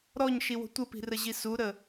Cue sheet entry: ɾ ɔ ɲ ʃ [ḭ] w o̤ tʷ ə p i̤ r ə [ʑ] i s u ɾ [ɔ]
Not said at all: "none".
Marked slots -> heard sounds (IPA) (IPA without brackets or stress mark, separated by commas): i, ʑ, ə